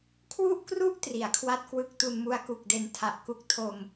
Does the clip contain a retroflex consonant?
no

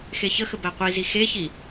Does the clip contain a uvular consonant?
yes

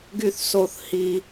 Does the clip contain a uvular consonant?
no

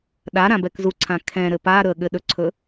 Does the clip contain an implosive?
yes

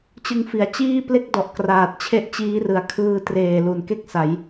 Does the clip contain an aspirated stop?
yes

